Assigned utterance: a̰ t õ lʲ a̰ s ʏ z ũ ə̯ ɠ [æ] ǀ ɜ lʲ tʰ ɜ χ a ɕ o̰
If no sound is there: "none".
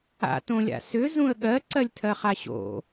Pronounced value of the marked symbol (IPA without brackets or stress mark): ɜ